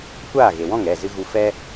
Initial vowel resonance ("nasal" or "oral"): oral